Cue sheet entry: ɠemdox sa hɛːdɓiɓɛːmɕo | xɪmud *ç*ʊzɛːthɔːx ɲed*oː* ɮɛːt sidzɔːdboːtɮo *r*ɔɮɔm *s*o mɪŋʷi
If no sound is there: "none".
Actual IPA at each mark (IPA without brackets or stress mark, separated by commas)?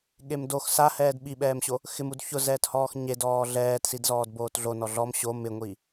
ç, ɔː, n, ɕ